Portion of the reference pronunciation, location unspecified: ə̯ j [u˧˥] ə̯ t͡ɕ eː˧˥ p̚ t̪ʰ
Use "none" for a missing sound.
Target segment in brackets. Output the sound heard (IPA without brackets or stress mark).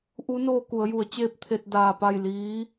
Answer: u˩˧